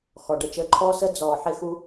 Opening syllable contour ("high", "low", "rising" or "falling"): low